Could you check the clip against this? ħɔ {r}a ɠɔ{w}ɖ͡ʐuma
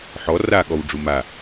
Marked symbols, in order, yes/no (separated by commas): yes, yes